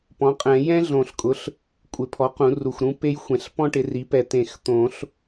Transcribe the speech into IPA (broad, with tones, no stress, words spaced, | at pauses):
pɔ̃˩˥qʼɛ̃˨˩˦ jɛ̃˥ ɮõ˨˩˦ɬkʼʊ˩˥ɬ | kʷʼɪ˨˩˦pʰɔ˩˥qũ˨˩˦ru˨˩x ɾũ˥pe˥jxʷɛ̃˩˥ɬ pɔ̃˥ʈɪ˩˥ri˩˥pɛ˨˩ t̪ẽ˨˩˦xt̪õ˨˩˦ɬ